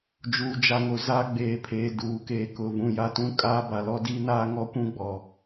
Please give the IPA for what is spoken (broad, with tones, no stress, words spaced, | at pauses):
d͡ʒuː˨d͡ʒa˨ŋo˨ za˦ɡ͡beː˨pʰeː˨ duː˨keː˨kʊ˨ vũ˨ja˨ tũ˦kʼaː˦ ba˨lɔ˦diː˦naː˦ ŋɔ˦kʷũ˦ɡ͡bɔ˨